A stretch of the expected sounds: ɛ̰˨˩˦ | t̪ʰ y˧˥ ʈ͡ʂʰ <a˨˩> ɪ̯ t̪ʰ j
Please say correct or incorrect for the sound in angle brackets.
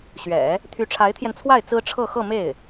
incorrect: a˧˥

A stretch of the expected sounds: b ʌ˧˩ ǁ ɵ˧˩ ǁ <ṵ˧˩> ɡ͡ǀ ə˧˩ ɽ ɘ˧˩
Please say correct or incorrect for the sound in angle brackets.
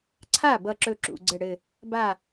correct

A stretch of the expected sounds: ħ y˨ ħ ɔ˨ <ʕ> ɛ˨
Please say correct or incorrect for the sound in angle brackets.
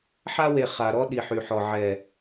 correct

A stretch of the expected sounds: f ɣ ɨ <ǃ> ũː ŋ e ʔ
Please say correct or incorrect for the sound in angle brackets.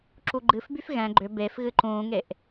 correct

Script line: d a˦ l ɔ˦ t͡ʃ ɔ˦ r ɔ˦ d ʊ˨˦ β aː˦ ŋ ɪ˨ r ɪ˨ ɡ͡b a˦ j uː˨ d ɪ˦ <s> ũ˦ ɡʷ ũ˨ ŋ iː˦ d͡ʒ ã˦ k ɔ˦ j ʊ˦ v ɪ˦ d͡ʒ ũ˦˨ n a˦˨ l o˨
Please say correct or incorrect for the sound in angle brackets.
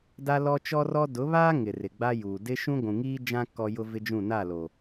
incorrect: ʃ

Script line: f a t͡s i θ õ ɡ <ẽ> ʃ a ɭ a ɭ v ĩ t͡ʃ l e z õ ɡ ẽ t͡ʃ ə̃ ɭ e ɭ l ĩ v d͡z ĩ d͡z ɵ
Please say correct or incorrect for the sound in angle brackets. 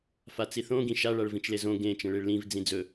incorrect: ĩ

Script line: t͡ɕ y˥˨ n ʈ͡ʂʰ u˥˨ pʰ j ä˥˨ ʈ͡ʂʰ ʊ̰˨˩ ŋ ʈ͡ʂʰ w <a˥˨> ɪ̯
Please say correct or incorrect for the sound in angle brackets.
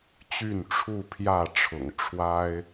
incorrect: a˦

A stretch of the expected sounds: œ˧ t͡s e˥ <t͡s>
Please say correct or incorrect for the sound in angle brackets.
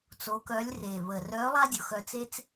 correct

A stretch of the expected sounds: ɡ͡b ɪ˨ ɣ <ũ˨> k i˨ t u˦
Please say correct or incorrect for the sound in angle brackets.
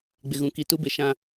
correct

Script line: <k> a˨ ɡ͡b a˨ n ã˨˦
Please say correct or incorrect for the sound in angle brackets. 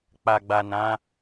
incorrect: k͡p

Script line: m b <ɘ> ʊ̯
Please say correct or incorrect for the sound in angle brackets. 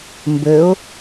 correct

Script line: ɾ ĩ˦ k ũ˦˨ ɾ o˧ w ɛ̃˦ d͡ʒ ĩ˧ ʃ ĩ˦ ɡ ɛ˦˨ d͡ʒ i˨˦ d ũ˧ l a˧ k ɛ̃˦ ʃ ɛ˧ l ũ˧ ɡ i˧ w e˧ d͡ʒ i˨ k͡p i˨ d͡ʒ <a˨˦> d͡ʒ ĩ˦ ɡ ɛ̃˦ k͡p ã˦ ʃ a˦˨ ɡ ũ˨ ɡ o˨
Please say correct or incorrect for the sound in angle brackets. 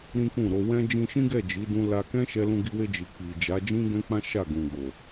correct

